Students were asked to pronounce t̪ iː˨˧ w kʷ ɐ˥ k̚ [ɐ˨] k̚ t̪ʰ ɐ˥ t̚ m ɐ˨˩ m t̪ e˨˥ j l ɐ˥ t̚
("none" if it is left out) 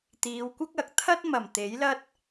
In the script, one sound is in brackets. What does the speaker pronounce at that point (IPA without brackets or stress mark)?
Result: ɐ˨